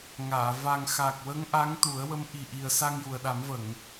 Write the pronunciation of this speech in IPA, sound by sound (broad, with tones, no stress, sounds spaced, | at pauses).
ŋ aː˨˩˨ v a˨˩ ŋ x aː˨˩ k̚ w ə˧˥ ŋ ʔ a˧˥ ŋ t̪ u˨˩˦ ə̯ w ə˧˥ m ʔ i˨˩ ʔ i˨˩ ə̯ s a˧ ŋ j u˨˩ ə̯ ɗ a˨˩˦ m v ə˨˩˨ ŋ